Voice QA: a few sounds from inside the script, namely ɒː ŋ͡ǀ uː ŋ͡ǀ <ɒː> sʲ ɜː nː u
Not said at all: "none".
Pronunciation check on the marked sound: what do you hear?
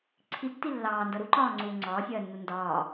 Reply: ɒː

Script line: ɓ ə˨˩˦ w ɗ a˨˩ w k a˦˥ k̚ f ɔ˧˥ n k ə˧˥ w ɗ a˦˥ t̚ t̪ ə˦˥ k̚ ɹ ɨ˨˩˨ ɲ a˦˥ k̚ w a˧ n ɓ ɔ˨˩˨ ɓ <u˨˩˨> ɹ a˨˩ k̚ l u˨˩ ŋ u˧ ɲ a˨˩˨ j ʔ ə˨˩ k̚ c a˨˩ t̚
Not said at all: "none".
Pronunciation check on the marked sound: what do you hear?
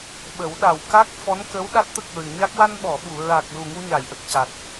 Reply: u˨˩˨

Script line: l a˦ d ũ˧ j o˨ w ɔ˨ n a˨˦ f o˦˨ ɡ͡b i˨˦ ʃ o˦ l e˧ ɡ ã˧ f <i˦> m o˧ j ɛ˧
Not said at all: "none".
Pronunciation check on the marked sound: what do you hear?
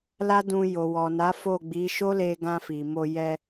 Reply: i˨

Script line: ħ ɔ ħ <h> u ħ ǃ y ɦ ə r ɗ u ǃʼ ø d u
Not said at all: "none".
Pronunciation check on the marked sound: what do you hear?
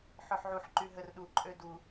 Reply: ʕ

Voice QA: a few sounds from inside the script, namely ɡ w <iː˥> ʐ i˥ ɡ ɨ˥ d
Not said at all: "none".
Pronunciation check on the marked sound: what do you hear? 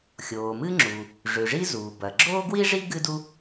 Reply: i˥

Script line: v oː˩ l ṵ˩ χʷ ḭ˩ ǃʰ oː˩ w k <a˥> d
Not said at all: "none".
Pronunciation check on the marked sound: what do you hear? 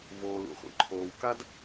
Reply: a˥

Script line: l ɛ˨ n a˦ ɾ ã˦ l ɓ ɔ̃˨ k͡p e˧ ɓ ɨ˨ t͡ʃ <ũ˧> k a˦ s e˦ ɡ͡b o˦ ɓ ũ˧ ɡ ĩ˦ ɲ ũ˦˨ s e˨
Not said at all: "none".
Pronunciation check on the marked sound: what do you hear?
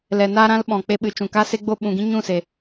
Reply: ũ˨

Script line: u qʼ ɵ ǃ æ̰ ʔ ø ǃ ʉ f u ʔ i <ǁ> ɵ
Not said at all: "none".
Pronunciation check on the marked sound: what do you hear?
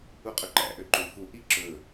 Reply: ǁ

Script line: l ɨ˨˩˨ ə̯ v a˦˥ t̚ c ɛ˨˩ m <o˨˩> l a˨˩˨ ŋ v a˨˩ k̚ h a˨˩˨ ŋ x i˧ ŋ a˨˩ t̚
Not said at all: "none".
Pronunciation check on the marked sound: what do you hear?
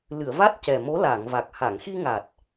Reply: o˧˥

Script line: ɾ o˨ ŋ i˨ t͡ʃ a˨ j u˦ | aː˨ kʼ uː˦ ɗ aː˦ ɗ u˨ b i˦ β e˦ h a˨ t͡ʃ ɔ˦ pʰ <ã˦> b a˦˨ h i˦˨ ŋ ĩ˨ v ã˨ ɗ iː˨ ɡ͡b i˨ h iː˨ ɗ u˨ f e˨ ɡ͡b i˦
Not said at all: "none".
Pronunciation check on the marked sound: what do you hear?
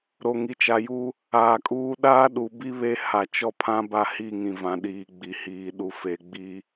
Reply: ã˦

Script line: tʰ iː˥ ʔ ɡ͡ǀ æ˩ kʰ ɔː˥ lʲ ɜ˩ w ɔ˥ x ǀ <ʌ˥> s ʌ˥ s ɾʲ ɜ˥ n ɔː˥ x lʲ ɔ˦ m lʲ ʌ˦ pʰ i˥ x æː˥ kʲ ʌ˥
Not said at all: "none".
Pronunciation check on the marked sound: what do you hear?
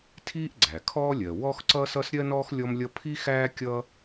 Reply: ʌ˥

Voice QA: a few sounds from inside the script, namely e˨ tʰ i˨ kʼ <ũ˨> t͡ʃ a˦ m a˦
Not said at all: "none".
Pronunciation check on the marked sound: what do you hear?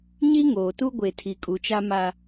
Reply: u˨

